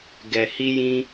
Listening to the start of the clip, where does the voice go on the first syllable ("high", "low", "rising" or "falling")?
low